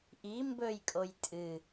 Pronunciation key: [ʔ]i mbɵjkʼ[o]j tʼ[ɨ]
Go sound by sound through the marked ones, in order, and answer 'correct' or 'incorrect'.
correct, correct, correct

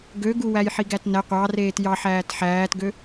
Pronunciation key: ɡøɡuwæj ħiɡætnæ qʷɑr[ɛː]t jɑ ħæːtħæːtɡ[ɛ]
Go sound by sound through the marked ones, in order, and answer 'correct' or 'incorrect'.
incorrect, incorrect

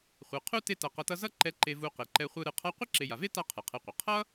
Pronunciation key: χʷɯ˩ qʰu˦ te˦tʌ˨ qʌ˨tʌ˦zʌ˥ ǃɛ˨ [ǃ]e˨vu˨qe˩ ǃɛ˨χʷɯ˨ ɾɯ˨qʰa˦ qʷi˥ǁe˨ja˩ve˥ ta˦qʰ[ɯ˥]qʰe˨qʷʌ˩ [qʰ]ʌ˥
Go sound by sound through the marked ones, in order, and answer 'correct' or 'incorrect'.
correct, incorrect, correct

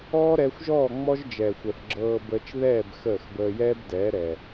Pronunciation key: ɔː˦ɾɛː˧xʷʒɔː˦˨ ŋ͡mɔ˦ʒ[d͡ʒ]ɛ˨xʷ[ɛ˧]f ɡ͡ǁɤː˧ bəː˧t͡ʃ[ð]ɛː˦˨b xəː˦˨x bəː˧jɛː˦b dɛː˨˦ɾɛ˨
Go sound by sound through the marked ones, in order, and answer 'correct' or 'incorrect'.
correct, incorrect, correct

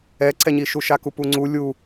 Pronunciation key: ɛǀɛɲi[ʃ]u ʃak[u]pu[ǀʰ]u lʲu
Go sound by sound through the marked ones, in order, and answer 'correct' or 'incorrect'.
correct, correct, incorrect

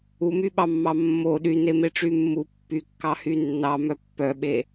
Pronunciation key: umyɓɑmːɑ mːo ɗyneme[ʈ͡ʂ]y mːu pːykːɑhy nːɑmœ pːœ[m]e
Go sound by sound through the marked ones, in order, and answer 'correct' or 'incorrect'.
correct, incorrect

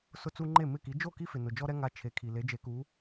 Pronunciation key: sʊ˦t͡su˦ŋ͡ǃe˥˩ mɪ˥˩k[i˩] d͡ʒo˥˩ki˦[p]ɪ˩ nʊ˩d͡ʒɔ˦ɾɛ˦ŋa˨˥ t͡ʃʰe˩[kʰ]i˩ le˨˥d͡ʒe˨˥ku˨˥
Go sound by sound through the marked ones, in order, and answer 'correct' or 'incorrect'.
incorrect, incorrect, correct

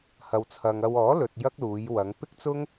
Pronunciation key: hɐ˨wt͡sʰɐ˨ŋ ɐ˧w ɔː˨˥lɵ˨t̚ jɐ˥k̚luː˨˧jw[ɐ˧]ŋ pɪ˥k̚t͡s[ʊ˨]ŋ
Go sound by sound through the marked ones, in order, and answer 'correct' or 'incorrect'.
incorrect, incorrect

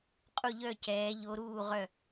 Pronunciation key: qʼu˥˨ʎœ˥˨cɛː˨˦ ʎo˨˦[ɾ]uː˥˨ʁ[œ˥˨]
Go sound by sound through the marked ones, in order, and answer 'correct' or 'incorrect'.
correct, correct

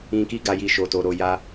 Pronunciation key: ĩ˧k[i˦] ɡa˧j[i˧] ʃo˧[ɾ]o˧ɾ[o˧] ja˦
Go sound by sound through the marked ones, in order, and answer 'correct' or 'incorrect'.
correct, correct, incorrect, correct

